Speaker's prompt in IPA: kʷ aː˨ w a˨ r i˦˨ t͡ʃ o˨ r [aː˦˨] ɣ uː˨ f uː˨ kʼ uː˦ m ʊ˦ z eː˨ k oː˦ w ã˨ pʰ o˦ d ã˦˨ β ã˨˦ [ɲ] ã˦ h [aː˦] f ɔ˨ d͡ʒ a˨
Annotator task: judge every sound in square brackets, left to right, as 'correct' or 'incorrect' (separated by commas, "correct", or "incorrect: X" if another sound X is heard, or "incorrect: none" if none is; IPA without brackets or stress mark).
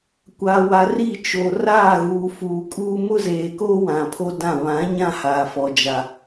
correct, correct, incorrect: aː˨